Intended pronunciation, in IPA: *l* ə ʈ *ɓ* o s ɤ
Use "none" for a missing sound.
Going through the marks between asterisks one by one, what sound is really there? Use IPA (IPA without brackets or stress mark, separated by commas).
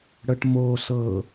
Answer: ɽ, m